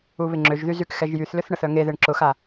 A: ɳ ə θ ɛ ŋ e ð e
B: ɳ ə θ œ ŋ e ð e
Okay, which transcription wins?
B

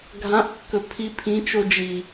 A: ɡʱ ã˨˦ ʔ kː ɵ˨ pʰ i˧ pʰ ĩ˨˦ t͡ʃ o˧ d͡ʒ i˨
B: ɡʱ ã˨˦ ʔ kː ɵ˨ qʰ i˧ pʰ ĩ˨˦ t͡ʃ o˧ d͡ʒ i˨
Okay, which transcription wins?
A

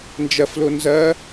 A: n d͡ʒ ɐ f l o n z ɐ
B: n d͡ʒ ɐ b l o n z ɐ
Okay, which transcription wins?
A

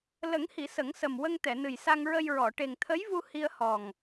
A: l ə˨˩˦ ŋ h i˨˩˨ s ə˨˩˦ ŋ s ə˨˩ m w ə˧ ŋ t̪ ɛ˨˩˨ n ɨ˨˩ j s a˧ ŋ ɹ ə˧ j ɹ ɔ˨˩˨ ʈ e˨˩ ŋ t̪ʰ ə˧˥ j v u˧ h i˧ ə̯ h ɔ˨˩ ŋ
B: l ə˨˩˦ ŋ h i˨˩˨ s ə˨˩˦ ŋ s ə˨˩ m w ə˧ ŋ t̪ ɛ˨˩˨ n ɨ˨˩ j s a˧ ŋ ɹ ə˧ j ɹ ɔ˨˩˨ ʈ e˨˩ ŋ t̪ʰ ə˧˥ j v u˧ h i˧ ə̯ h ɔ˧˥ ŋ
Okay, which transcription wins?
A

